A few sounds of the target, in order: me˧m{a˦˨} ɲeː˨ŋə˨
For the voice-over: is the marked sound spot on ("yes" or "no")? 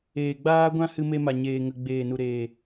no